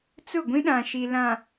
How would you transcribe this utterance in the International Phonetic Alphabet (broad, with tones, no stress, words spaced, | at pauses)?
t͡sʊ˦˨ɡʷĩ˦ɗã˨ ʃi˨lã˨